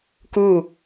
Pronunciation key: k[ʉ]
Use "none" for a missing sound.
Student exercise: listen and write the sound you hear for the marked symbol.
u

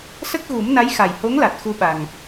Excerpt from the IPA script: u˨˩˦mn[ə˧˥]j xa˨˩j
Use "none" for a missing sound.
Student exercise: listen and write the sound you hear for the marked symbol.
a˧˥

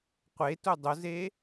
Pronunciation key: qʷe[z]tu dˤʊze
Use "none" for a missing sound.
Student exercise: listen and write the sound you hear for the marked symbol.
none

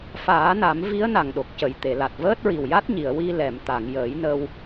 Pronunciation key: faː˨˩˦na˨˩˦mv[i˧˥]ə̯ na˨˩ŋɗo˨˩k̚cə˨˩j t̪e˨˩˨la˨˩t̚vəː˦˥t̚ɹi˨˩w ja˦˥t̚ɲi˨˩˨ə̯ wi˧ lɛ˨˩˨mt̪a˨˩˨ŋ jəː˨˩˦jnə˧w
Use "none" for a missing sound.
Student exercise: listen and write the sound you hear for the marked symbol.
i˧˥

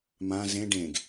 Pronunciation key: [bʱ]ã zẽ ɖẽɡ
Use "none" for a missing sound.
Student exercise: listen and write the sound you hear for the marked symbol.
m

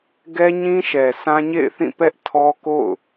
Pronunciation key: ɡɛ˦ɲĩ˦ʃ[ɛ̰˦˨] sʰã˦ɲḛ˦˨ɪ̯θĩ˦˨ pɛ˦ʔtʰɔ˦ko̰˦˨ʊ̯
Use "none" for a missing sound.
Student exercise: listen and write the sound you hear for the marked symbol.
ɛ˨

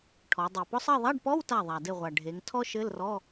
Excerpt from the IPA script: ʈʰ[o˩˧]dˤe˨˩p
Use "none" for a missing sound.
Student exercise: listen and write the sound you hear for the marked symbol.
ɔ˩˧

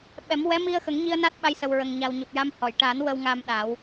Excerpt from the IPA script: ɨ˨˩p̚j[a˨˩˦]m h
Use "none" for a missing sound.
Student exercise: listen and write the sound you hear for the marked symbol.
a˧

